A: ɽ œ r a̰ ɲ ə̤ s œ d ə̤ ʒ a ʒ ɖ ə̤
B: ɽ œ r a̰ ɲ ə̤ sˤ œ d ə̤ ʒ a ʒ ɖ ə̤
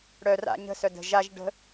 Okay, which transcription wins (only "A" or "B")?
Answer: A